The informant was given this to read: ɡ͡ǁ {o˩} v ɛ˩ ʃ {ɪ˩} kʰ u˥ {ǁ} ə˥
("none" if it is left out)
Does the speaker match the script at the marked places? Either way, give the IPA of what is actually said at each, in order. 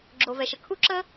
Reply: o˩, ə˩, ǁ

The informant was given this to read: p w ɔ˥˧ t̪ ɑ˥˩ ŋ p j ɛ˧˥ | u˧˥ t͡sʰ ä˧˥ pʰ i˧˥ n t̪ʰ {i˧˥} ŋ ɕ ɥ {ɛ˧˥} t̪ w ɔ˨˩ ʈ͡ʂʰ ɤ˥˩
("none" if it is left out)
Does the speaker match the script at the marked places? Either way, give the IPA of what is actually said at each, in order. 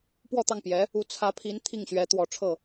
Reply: i˥˩, ɛ˧˥

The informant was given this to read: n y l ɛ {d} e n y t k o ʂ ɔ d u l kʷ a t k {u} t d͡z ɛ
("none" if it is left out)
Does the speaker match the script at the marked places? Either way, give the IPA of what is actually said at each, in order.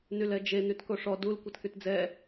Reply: d͡ʒ, y

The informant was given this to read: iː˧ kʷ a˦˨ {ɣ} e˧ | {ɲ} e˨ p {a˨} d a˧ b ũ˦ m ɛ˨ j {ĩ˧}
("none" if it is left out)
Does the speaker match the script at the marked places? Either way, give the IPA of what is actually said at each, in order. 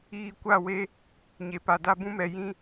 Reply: w, ɲ, a˨, ĩ˧

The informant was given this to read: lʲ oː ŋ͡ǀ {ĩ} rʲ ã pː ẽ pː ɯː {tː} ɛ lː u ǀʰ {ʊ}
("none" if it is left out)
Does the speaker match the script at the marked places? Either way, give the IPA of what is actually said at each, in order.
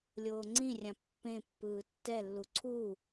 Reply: ĩ, tː, u

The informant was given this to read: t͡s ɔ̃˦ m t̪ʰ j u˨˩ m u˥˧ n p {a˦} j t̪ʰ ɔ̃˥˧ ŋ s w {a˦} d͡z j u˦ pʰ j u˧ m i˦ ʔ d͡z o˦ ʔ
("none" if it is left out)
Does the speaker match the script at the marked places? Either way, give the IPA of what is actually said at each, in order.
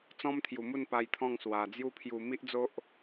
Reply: a˧, a˨˩

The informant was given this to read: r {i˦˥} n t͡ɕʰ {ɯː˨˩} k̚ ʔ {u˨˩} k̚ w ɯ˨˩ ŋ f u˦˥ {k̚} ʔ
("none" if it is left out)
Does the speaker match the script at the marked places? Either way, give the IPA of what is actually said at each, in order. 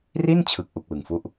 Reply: i˥˩, ɯ˨˩, u˨˩, none

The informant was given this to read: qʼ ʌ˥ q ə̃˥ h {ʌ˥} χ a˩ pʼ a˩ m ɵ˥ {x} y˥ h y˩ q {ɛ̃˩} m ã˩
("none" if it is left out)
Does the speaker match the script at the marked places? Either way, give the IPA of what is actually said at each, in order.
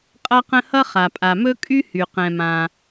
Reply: ʌ˥, kʼ, ɛ̃˩

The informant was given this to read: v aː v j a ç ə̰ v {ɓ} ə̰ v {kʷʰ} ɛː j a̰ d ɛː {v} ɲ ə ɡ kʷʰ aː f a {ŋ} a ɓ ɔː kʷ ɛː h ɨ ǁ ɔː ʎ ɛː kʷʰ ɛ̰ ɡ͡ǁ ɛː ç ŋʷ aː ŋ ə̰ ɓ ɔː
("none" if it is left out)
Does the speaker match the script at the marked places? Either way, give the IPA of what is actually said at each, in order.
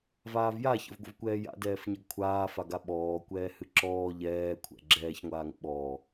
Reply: ɡʷ, kʷ, f, ɡ

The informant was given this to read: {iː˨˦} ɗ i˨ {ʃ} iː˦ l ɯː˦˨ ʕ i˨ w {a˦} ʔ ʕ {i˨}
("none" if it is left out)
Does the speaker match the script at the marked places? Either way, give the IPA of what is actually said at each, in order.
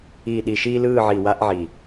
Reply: iː˨, ʃ, a˦, i˨

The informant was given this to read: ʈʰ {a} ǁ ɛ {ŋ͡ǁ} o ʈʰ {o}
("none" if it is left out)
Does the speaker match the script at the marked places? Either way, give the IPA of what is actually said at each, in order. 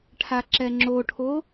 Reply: a, ŋ͡ǁ, o

